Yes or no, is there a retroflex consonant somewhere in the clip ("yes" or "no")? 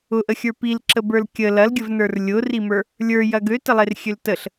no